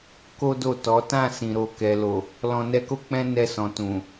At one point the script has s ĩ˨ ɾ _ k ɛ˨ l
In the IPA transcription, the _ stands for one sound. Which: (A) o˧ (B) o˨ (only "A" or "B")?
B